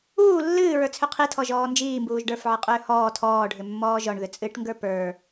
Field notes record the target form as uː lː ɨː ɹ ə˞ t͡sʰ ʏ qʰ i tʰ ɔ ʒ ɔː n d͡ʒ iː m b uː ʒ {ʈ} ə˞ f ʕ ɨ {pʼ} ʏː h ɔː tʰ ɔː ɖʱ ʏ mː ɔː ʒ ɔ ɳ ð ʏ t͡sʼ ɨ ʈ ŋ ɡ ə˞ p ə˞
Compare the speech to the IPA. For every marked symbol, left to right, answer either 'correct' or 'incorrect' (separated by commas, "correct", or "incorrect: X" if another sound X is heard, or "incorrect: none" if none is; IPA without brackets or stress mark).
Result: incorrect: ɖ, incorrect: qʼ